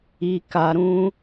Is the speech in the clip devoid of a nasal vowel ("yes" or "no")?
no